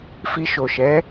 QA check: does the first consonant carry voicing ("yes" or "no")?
no